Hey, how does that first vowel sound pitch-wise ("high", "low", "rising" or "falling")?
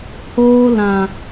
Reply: high